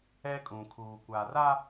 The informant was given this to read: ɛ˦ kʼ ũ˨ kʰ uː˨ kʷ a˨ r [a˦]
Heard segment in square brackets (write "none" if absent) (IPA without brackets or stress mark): a˦